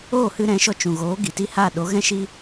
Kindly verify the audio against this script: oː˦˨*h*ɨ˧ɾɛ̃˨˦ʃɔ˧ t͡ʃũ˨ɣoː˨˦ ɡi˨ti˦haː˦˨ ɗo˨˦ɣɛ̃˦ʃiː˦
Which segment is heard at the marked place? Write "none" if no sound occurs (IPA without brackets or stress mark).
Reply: h